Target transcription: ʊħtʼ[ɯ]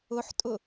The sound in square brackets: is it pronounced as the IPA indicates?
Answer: no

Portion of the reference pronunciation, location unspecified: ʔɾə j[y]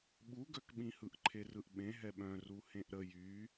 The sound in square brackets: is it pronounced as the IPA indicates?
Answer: yes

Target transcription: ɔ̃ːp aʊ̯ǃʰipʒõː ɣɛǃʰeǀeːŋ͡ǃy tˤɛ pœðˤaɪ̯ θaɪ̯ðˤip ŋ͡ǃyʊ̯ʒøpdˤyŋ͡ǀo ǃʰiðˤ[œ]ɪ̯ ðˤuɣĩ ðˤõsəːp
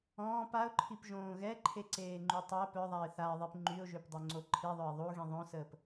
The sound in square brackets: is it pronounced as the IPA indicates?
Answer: yes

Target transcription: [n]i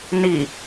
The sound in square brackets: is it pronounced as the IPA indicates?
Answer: yes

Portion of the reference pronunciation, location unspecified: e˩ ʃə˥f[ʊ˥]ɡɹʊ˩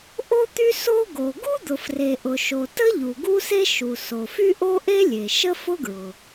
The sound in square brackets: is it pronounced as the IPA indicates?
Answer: yes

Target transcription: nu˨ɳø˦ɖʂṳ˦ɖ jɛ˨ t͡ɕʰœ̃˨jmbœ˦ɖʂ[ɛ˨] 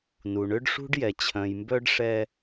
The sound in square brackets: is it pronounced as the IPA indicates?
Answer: no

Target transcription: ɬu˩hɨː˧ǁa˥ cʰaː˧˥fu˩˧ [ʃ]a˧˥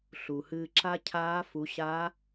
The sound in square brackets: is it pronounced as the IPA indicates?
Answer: no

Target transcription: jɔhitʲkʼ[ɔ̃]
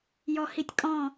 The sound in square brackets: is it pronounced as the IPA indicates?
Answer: yes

